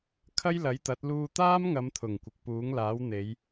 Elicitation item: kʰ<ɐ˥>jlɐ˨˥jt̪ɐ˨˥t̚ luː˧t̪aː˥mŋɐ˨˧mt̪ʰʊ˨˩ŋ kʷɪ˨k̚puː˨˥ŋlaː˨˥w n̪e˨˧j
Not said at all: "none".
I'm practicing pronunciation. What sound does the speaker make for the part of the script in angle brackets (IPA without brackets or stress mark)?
ɐ˥